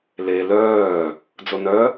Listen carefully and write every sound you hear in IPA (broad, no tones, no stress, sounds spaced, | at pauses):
l e l œː | d͡z o n œ